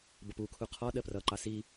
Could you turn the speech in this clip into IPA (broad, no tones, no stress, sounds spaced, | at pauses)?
b ʌ p u kʰ u qʰ ɔ ɗ ɜ p r ʌ ǃ ɑ s i